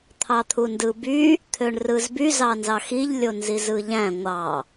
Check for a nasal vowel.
present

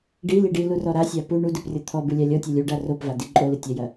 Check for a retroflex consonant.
present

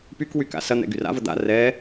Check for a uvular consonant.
absent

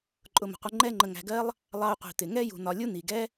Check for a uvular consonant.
present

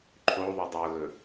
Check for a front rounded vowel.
absent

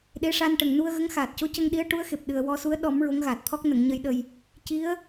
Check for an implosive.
present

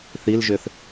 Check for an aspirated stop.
absent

